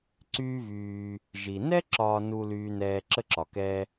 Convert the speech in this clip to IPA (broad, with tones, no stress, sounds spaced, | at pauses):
ǀ yː˦ v yː˨ | ʒ i˩ n ɛ˥ ǁ ɒː˨ n u˨ l yː˦ n ɛː˦ ǁ ə˥ ǁ ɒ˩ k ɛː˦